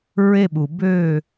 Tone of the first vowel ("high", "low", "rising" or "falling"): falling